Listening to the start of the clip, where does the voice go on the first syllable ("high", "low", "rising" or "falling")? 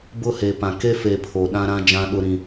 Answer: falling